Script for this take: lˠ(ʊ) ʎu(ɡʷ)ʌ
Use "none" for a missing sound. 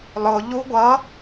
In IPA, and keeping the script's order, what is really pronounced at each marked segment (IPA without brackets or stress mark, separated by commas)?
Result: ʊ, ɡʷ